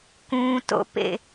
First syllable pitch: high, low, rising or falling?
low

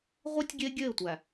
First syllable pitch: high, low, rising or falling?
high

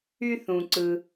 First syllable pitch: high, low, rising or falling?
high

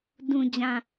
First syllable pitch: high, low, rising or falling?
low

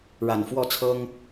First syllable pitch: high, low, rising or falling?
low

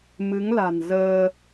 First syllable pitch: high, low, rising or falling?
rising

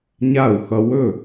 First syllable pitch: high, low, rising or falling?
falling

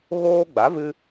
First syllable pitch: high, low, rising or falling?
high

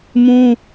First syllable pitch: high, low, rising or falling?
high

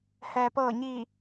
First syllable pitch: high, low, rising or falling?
low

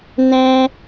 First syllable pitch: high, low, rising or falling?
high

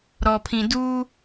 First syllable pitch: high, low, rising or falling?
low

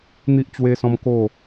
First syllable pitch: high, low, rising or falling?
high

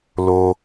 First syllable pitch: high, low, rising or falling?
high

